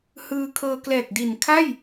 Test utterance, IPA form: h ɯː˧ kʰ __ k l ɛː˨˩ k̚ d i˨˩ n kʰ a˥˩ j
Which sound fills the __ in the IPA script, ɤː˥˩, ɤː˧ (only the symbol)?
ɤː˧